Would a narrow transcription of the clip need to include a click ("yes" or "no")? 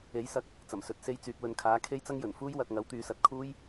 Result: no